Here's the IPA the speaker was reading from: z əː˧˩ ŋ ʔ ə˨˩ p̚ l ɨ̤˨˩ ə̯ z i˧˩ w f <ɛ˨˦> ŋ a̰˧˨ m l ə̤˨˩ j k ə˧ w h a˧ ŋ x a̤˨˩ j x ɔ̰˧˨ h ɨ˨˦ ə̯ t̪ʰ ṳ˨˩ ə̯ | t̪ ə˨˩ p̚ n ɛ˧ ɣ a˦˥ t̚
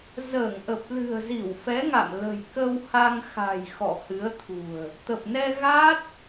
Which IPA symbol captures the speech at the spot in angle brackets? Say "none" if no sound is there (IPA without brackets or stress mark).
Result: ɛ˨˦